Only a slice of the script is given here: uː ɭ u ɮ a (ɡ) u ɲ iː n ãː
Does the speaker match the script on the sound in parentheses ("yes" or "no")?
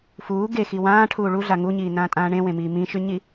no